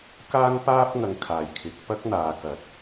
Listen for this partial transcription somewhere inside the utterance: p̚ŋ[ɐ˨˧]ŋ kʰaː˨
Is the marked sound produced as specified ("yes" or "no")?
yes